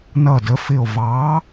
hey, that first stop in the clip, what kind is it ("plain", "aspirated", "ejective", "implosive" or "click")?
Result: plain